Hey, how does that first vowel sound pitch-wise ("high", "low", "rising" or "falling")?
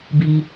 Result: low